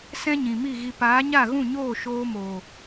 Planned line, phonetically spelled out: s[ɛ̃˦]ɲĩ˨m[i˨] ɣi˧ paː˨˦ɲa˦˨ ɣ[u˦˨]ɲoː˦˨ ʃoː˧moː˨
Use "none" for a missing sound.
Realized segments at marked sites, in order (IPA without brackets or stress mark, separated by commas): ɛ̃˦, i˦˨, ũ˦˨